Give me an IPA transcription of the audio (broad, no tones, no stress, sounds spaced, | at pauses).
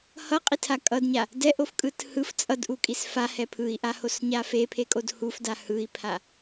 h ʌ qʼ i tʰ a kʼ ʌ d ɲ a | d ɛ ʔ o f kʼ ɯ t h ɯ f t͡sʼ ʌ d ʔ u kʼ i s f a h ɛ pʰ ɯ i̯ ʔ a h o s ɲ a f e pʰ e kʼ o d h u f d a h ɯ i̯ pʰ a